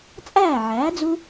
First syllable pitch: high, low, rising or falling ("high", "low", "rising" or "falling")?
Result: falling